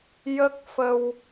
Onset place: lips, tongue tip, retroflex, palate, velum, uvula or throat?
palate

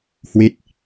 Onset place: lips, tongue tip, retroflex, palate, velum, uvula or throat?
throat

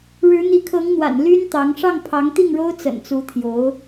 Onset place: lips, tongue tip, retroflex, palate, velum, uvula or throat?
retroflex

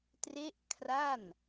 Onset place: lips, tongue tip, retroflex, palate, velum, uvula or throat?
tongue tip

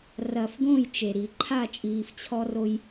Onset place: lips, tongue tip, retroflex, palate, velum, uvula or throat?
tongue tip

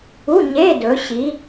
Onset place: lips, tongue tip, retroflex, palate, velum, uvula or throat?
palate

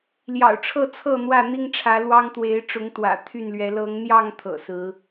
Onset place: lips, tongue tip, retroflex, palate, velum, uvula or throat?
tongue tip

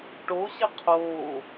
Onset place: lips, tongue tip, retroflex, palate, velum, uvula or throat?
retroflex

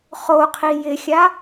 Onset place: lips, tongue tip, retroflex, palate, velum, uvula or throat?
uvula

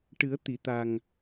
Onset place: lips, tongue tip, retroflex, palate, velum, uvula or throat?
retroflex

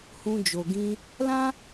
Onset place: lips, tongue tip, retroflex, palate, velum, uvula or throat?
throat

